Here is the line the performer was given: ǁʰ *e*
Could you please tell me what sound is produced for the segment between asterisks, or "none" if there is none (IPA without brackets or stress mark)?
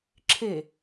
e